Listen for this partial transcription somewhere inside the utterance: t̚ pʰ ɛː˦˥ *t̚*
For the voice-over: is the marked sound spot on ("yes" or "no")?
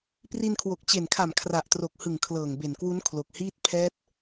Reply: yes